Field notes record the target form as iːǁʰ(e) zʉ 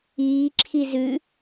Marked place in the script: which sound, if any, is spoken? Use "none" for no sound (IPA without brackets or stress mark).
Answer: i